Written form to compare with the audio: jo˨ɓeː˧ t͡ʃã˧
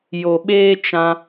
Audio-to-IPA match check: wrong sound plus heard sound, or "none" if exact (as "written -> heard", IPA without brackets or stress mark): none